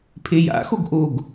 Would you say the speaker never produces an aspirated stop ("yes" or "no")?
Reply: no